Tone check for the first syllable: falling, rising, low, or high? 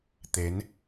rising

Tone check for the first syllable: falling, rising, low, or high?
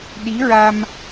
rising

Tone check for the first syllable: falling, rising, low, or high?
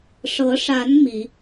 rising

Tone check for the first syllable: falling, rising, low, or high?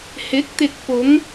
rising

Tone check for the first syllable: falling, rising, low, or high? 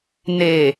low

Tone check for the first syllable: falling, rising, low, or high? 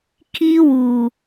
high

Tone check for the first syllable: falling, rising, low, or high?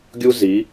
high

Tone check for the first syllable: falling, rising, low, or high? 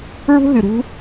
high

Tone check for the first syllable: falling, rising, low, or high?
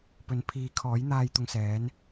rising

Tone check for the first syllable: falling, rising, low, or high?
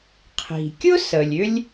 low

